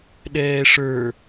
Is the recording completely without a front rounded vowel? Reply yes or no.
yes